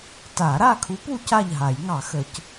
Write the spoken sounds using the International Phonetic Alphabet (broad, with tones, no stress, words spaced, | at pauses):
ta˨˩˦ɾa˥˨kʰu˧˥p u˧˥ca˥˨ʎɦa˨˩˦j ŋɑ˨˩˦xə˨˩˦c